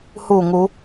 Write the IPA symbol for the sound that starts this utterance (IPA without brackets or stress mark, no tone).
h